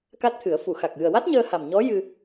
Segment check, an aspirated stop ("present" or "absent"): present